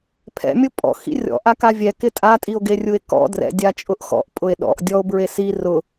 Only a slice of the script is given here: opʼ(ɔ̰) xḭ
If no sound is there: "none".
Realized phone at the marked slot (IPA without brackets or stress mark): ɔ̰